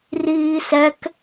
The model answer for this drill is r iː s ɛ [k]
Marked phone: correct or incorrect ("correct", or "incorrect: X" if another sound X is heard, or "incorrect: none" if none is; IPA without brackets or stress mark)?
correct